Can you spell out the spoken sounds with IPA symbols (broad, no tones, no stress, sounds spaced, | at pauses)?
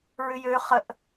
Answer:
ɹ ʏ j ø χ ə ʔ